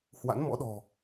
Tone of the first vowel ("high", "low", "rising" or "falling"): rising